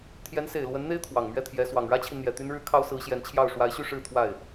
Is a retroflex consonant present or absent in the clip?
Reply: present